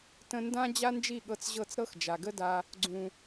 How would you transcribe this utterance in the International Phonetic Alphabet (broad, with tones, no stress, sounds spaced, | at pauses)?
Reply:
t ə̃˧ n d ã˦ d͡ʑ a˦ n d͡ʒ i˦˨ ɠ ɤ˧ t͡s ʑ ɤ˦˨ t͡s ɾ ɤ˦ x d͡ʒ a˨ ɡ ə˦ d a˧ | ɡ͡ǀ ũ˨